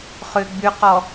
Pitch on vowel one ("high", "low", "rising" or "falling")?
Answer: low